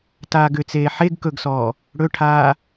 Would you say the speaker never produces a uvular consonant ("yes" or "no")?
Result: yes